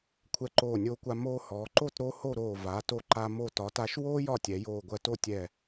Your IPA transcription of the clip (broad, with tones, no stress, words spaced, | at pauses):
kʷʰɛ˧ǃoː˧˩nʲoː˧kʷa˧ moː˧hɔː˩˧ǃo˥˧t ɾo˥ ho˥˧ɾoː˧˩ va˩˧ to˧ǃa˧ mo˧˩tɒ˩˧ta˧ʃ woː˥ jɒ˥˧tʲɛ˩˧joː˧˩ ɡʷɜ˧to˥˧tʲɛ˧˩